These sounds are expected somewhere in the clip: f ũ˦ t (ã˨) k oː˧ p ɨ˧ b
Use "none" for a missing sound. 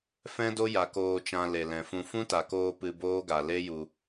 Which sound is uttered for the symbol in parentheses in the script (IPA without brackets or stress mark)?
a˨